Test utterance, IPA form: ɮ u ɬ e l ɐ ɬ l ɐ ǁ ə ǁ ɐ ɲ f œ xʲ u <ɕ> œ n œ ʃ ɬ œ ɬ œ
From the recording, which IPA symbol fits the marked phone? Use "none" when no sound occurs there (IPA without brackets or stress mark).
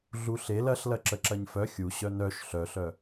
ɕ